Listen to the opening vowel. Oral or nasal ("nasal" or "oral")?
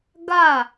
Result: oral